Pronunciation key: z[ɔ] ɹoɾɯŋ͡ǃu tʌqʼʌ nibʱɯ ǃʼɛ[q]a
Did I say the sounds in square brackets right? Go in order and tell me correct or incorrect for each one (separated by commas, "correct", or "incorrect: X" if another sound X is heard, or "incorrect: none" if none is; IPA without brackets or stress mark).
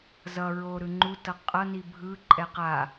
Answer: incorrect: ʌ, correct